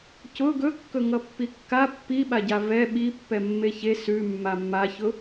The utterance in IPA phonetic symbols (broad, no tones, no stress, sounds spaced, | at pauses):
c ʊ ɡ ɵ kː ɵ ŋ ʌ pː i kː a pː i ɓ a ɟ a v ɛ ɓ i pː ɛ mː e ç e s ʉ mː a mː a ç ʊ